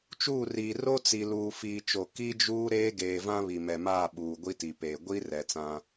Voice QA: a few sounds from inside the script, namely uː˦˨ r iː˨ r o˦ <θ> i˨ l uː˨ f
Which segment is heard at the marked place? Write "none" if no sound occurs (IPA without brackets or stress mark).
t͡s